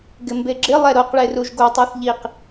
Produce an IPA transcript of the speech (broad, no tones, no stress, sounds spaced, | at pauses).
ɡ ɪ m b e ɡ͡ǁ ɪ lˠ ɛ ɾ o q ɭ e r u ʒ ɡ o tˤ a θ ʎ i q